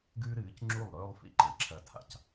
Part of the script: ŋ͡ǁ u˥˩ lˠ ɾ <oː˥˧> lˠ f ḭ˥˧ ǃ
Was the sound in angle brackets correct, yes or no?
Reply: no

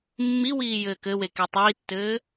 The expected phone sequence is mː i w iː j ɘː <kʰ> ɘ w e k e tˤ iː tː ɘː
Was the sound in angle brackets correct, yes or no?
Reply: no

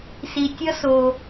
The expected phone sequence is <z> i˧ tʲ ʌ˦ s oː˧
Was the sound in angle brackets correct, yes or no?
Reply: no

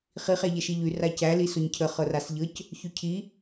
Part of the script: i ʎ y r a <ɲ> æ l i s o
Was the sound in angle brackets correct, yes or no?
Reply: no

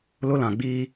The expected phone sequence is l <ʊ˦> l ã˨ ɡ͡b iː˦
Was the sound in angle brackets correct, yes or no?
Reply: yes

